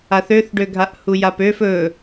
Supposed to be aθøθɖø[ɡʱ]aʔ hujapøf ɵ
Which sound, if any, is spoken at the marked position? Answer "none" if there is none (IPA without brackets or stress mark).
ɡʱ